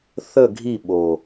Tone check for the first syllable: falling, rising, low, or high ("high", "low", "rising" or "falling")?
falling